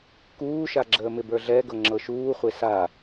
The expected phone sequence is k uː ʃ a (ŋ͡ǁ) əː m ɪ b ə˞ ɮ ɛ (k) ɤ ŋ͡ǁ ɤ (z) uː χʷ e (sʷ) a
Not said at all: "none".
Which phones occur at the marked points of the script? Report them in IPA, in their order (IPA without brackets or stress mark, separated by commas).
ɡ͡ǁ, ɡ, ʃ, s